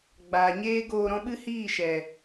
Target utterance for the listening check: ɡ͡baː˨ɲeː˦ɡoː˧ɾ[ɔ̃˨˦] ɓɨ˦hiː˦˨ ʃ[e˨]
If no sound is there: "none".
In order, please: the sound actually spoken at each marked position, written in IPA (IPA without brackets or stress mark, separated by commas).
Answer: ɔ̃˦, ɛ˨